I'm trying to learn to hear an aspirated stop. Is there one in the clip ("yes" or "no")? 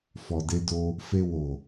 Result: no